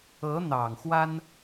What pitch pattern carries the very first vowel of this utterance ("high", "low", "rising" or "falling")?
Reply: rising